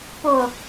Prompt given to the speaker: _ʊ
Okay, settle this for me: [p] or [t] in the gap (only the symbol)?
p